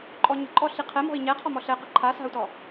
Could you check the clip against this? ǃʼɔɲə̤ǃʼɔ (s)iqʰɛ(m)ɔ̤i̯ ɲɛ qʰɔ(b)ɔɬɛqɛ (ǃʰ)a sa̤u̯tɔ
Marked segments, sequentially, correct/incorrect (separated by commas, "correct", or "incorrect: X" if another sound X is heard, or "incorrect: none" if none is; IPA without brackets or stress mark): incorrect: ɬ, correct, incorrect: m, correct